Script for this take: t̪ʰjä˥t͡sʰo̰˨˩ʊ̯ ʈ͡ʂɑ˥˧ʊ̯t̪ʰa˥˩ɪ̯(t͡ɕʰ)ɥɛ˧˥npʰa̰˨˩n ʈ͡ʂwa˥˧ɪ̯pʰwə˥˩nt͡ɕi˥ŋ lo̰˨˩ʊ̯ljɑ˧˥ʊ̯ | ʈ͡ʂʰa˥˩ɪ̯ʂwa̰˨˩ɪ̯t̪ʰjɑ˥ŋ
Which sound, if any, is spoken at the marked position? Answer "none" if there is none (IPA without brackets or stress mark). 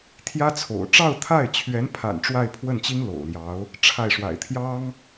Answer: t͡ɕʰ